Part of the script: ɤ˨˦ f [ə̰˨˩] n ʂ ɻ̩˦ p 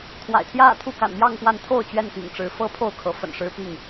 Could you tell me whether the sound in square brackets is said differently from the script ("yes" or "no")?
no